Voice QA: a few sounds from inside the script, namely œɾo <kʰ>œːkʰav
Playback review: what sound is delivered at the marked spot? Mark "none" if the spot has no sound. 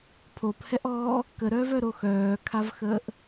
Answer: x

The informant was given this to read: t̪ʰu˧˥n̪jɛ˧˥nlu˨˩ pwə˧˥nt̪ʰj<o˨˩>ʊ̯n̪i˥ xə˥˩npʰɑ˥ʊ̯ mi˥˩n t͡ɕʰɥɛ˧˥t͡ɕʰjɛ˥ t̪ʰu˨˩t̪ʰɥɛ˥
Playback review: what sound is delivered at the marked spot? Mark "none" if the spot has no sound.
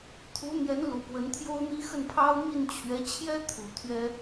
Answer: o˥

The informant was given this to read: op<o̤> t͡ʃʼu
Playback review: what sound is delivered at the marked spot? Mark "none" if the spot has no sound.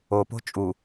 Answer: o̤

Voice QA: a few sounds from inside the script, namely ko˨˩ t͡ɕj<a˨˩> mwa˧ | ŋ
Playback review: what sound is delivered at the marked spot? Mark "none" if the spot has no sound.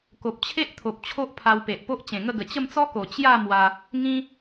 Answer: a˥˧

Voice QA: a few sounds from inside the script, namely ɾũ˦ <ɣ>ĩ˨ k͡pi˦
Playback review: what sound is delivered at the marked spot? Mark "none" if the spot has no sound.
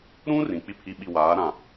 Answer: r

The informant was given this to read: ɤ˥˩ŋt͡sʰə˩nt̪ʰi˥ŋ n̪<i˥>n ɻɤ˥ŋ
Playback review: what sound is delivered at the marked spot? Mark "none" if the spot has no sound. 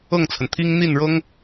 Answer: i˥˩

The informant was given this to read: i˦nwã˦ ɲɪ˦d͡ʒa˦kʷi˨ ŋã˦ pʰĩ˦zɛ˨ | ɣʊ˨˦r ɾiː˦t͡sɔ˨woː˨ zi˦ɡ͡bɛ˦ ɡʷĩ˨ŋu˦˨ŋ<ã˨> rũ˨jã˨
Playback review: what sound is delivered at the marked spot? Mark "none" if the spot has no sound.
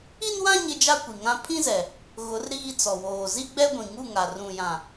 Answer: a˨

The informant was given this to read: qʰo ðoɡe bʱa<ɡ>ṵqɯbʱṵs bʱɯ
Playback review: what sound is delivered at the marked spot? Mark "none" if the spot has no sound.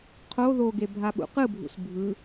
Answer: ɓ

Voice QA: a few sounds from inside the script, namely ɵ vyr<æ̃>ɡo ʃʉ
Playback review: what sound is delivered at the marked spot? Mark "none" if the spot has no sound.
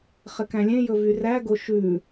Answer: æ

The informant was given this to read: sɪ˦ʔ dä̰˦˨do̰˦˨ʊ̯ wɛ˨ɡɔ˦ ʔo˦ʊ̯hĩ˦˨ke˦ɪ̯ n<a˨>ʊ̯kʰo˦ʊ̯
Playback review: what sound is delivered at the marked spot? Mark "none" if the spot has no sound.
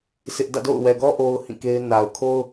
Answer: a˨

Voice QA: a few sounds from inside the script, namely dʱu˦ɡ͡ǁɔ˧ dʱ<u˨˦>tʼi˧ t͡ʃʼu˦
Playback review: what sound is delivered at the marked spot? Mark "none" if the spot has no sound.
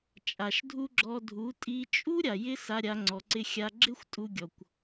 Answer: u˨˦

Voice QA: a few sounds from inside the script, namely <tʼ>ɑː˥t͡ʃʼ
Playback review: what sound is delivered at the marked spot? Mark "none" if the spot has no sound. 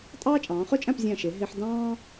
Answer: tʼ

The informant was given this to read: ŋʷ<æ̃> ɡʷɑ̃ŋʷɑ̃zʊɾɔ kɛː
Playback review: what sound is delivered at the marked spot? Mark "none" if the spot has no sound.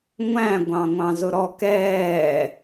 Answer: æ̃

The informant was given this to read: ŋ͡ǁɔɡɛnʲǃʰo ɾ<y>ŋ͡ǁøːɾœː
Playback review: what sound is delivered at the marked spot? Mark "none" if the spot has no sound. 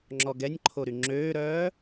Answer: y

